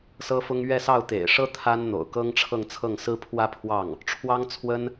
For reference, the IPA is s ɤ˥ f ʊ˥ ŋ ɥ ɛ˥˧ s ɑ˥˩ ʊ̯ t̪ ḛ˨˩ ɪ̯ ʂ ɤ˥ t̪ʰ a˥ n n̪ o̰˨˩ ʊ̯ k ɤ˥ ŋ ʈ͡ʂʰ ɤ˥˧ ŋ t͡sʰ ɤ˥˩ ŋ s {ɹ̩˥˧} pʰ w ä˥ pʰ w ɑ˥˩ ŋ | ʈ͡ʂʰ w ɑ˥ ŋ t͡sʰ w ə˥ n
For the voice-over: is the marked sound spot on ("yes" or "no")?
no